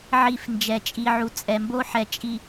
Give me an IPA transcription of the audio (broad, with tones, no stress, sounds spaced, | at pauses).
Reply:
ʕ i˨ f n d͡ʒ ɛ˨ t͡ʃʼ i˨ ʕ u˨ t͡sʼ ɛ˨ m b o˦ ħ ɛ˨ t͡ʃʼ i˨